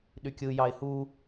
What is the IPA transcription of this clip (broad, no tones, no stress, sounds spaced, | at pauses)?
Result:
ɗ y kʲ ɯ j ɑ ɪ̯ h u